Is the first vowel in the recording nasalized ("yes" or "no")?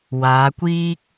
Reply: no